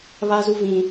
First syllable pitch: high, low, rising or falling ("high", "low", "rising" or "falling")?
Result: high